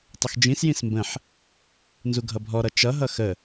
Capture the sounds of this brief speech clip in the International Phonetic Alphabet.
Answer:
tˤ ə x d͡ʒ ĩ s j ĩ s m b ə̃ ħ | n z u ɡʱ ʌ bʱ ɔ ɾ ʌ t͡ʃ ʌ ɦ ʌ x ə

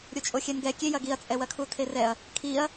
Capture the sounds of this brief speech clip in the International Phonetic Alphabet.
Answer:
ɾʲ o t͡ʃʼ o xʲ ɛ n ɡ ɛ kʲ e j ɐ ɡ i ɐ̯ t͡sʼ ɛ w ɐ kʰ u tʰ e r ɛ ɐ̯ | kʰ i ɐ̯

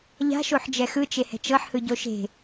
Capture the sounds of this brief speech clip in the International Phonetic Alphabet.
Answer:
ʎ a̤ ʃ o ħ d͡ʒ ɛ x ɯ t͡ʃ e h ɛ̤ t͡ʃ ɤ ħ h ɯ ɟ o ʃ e̤

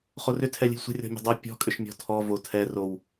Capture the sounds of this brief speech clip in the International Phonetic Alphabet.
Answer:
χ o r ʏ tʰ ɛ lʲ ə̤ lʲ sʷ ə̤ rʲ ɔ̤ mʲ ə̤ dˤ o pʲ ɔ̤ kʼ ʏ ʃ mʲ ɔ̤ tʰ ɔ v o tʰ ɛ r o w

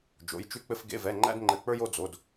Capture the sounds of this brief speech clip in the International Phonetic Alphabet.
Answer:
d͡ʒ o̰˧˥˧ j t͡ʃ ʉ˥ k͡p ɘ˥ f ɡ ḛ˧˥˧ v ɛ˧˥˧ ŋ͡ǃ æ̰˥ d ŋ͡ǃ ɘ˧˥˧ k͡p ə˞˥ j o˥ d͡z o˧˥˧ d

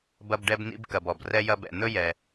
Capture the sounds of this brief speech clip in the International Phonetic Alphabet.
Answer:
b ɐ˦ b ɖ ɛ˦ b n ḭ˦ b k ɐ˨ b ɔ˩ b r ɛ˦ j ɐ˦ b ɛ̰˨ n̪ ɵ˥ j ɛ˨

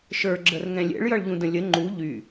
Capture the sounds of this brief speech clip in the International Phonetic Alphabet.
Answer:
ʃ ə˞ ɡ͡ǁ ə r ŋ ɛ̃ lʲ ɛ̰ ɭ j ʌ ɭ ʎ ũ d ə̃ lʲ ə ŋ͡ǃ u ʎ y

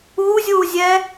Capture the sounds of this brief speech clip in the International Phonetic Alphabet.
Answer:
uː zʲ uː zʲ ɛ

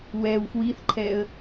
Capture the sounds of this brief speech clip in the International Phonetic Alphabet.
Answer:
w ɛ w f w i θ ǃʰ ɛ ə̯

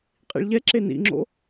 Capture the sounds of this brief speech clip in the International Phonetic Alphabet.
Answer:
qʼ ḭ ɭ ʎ ɛ ǁ e n ḭ ŋ͡ǁ o̰

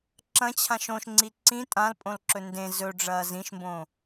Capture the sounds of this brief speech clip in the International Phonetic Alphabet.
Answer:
ǁ ɐ̃ t͡ɕʰ ã ʃ õ ʃ ŋ͡ǀ i ǀ ĩ tʼ ã l pʼ õ l ǁ ɵ n d ẽ z ɵ ɖ͡ʐ ɐː z ĩ ʃ m b õ

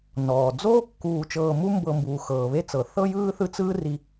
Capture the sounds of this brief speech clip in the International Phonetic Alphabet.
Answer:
n ɔː˩ d͡z oː˥ kː uː˨ t͡ʃ ɤː˨ m u˦ m b ɤ˨ m b uː˩ x ɤː˩ β e˦ t͡s ɤ˩ θ ɤ˥ j ɯː˥ θ ɯ˦ t͡s ɯː˥ r i˨

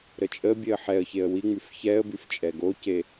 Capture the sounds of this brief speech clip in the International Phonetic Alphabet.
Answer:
ɾ ə t͡ʃʼ ə bʲ e ə̯ ħ ɛ ə̯ ç e ə̯ w i ŋ͡m y f ç ɛ ə̯ b y f t͡ʃʼ ɛ ɡ o c e

